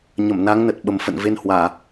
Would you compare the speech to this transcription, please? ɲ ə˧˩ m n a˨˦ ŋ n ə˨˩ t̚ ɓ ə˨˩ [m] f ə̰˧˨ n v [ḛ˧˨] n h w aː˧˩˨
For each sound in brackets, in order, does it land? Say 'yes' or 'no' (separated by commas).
yes, no